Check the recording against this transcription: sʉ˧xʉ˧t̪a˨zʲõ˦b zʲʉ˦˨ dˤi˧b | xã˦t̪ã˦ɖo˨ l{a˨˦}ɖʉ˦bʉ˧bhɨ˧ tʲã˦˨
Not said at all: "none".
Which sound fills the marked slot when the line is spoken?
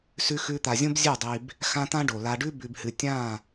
a˧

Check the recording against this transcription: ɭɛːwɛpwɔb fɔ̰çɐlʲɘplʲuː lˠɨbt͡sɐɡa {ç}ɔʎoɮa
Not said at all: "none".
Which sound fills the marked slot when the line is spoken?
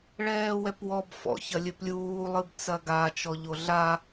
t͡ʃ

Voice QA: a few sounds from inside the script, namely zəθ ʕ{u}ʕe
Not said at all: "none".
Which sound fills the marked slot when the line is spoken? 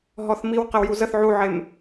u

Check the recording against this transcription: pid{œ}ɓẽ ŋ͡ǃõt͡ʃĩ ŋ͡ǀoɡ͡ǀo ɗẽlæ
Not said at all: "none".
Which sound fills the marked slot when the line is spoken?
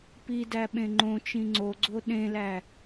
æ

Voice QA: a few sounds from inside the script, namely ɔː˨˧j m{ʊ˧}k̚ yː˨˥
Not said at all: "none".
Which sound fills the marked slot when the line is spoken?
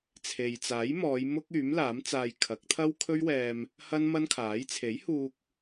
ʊ˥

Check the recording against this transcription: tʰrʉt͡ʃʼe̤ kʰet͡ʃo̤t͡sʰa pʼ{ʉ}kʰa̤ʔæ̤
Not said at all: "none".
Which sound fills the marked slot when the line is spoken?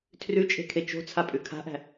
ʉ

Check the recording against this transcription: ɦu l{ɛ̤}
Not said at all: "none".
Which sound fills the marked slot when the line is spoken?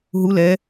ɛ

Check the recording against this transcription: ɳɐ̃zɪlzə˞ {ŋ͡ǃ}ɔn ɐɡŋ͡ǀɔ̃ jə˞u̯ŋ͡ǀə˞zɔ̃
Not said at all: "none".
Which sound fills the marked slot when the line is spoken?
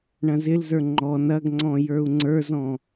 ŋ͡ǃ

